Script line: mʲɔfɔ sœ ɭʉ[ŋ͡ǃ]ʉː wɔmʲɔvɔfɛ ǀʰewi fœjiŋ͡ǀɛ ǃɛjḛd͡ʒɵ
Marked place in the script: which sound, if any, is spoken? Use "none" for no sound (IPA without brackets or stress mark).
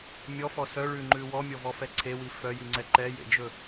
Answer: ŋ͡ǃ